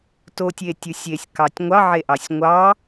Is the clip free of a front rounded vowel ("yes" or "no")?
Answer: yes